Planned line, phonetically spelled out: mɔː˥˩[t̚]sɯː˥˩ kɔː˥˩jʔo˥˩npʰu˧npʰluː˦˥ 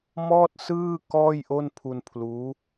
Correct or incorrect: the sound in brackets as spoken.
correct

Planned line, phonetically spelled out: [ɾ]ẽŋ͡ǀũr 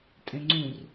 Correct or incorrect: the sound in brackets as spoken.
incorrect: tʼ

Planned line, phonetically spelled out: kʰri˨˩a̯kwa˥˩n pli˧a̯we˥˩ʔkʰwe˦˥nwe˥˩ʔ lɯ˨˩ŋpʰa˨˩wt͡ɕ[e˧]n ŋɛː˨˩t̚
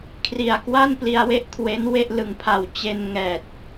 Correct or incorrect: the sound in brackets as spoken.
correct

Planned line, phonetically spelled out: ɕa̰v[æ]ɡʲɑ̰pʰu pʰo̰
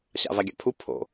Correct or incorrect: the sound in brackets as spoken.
incorrect: a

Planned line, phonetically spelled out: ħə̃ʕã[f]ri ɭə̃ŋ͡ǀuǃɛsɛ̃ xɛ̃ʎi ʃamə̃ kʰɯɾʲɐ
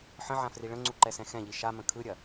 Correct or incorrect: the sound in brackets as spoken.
correct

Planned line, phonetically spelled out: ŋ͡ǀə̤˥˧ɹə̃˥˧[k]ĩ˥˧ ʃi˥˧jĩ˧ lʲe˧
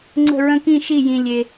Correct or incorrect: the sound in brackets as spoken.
correct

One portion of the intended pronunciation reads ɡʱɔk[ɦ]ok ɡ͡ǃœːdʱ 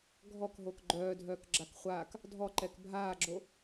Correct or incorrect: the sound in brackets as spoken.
correct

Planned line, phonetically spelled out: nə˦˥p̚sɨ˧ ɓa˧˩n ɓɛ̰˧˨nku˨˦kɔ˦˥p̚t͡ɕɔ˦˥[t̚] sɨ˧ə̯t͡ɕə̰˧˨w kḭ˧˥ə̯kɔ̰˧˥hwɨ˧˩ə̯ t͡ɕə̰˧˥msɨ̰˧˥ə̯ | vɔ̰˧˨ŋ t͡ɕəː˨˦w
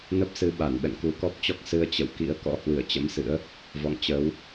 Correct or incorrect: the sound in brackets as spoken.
incorrect: k̚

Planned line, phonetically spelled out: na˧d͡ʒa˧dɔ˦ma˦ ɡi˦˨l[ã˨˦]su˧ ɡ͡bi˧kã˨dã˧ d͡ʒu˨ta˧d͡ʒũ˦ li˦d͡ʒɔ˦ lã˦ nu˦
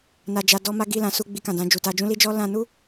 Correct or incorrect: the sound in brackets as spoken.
correct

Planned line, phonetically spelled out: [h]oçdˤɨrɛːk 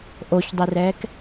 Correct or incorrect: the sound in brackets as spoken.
incorrect: ʔ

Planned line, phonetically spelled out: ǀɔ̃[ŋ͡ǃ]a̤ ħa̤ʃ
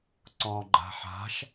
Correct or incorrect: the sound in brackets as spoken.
incorrect: ɡ͡ǃ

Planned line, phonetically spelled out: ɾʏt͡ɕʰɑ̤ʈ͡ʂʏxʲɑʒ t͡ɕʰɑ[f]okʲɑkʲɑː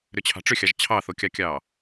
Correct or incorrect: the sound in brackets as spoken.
incorrect: θ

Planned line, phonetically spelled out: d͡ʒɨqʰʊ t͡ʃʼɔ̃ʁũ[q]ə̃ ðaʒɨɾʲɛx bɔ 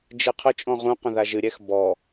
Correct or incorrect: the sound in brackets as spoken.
correct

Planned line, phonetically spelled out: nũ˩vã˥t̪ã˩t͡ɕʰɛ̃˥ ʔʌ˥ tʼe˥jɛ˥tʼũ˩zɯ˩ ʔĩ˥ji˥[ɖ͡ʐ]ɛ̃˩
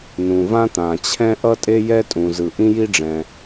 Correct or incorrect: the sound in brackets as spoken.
correct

